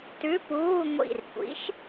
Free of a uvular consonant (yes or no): yes